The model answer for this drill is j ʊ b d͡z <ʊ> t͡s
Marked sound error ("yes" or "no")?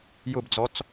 yes